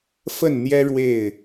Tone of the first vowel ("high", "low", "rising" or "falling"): falling